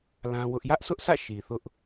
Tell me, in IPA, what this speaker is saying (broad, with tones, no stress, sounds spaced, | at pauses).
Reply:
l ã˦ w ʊ˦ ʔ j ä˦ ʔ s ʊ˦ ʔ sʰ ä̰˦˨ ʃ i˨ θ ʊ˦ ʔ